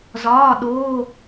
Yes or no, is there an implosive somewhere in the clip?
yes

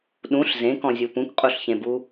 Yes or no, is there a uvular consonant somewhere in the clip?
yes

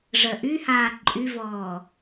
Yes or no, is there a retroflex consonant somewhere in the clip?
yes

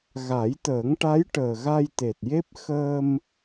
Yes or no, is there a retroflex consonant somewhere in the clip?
yes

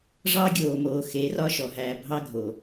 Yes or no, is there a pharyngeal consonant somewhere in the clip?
no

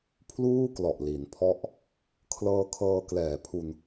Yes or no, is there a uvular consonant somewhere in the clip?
no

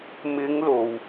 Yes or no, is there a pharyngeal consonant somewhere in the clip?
no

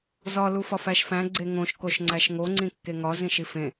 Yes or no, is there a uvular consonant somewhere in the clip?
no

